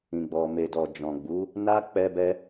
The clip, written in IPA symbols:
ĩ˨ ɡ͡b ɔ˨ m e˨ d ɔ˨ d͡ʒ ɔ̃˨ ɡ͡b u˨˦ | n a˦ k͡p ɛ˧ b ɛ˧

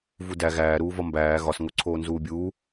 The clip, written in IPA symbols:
v u d æ ɣ æː ɾ uː v ɒ m b æː ɣ ɒ s ŋ o ǀʰ oː n z uː bʲ uː

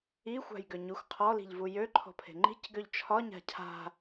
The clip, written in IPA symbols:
i xʷ a̤ j ɡ ø ɲ u x qʰ ɔ l i̤ ʎ v u j ø ǃʰ ɔ̤ pʰ e̤ ŋ͡ǃ i̤ c ɡ ø ʎ t͡ʃʰ ɒ ɲ a̤ cʰ a̤

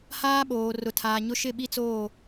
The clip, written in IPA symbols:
h aː˦ ɓ oː˨ r ʊ˨ tʰ aː˨ ɲ ʊ˦ ʃ ɪ˦˨ ɓ i˦ t͡s oː˦˨

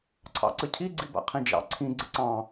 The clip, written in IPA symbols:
ǀʰ ɑ̰ ǀ ə cʰ i ɡ͡ǀ i b a̰ qʰ ĩ d͡ʒ ɑ̰ ǀʰ ĩ ɡ͡ǀ ə ǀ ɑ̃

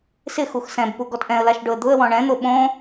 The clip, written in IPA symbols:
s ɪ x u x s ɛ̃ b p u ɡ ɔ t ʔ ɛ̃ ə̯ l a ʃ ɖ ʊ ə̯ d̪ ʊ ə̯ w ɔ̃ ɳ ɛ̃ n̪ o ɓ õ

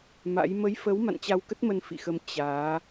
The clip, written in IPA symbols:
m a̰˧˥ j m ə˨˦ j f ə˨˦ w m a̰˧˨ n t͡ɕ a˧ w k ə˦˥ t̚ m ə˧ n f ḭ˧˨ x ə˧ m t͡ɕ aː˨˦

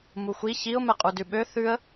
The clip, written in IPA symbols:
m u xʷ i ç i ʊ̯ m ɛ qʼ u d ʉ ɓ ø θ ʉ ə̯

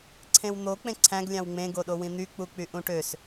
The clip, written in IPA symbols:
ǀʰ ẽ w n̪ o k͡p ẽ ǀʰ æ̃ ɡ lʲ ɑ̃ w ŋ͡m ẽ ɡ o ɗ o w ĩ n̪ y k͡p u k͡p y ʔ ũ ʈ ø s

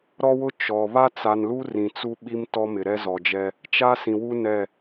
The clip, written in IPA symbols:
ɾ ɔ˦ w ʊ˦ t͡ʃ ɔ˨ β a˦ t͡s a˨ n l u˦ r ĩ˨ t͡s u˦ ɓ i˦ m t ɔ˦ m ɪ˨ ɾ ɛ˦ z ɔ˨ d͡ʒ ɛ˦ | t͡ʃ a˦ s ĩ˨ w u˦ n ɛ˦˨

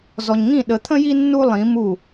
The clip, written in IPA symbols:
z ɔ˨ ɲ ŋ ĩ˦˨ ɗ ə˨ t̪ʰ ə̃˦ j i˦ nː u˦ lˠ ĩ˨˦ m u˦˨

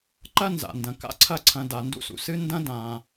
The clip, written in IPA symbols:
ǃ ɐ˥ n z a̰˩ n d ɐ̃˩ k a̰˦ ǀʰ ɐ˦ ǀʰ ɐ̃˨ d a˩ n d ṵ˥ s ṵ˩ s ɨ˥ n d ɐ̃˥ d ã˩

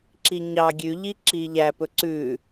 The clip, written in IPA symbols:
ǁ i ɲ ɑ ɡʲ ʉ ʎ i ǁ i ʎ æ p ɵ ǀ ʉ

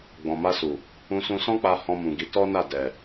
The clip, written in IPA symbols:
ɡ͡b ɔ̃˨ m a˧ s u˨ | ũ˧ s ũ˧ s ɔ̃˦ k͡p a˧ h ɔ̃˧ m ũ˨ ɡ i˨˦ t ɔ˦ n a˦˨ d ɛ˨

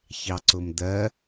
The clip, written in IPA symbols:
ç ɑ ǀ ʊ m d̪ ɜ

